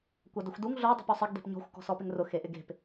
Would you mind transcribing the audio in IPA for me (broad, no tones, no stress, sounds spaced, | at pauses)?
kʷ a d ɪ xʷ d u ŋ ɮ o dˤ ṳ p ɔ sˤ ɪ ɡ d e̤ p ɲ ɔ̤ xʷ k ɔ̤ s ɔ p ɪ ŋ r ʊ x e ʔ ɪ ɡ e̤ p